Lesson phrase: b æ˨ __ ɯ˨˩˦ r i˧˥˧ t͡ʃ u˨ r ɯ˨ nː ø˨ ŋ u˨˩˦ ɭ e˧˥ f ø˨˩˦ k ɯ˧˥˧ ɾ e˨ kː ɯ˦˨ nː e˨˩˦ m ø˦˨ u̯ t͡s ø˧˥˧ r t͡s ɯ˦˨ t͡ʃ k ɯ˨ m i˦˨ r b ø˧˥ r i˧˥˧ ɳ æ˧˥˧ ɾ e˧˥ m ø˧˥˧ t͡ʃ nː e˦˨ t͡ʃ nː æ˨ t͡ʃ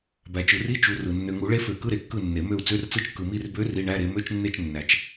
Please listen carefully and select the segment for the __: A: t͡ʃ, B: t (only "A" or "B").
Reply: A